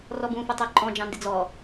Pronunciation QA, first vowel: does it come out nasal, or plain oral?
oral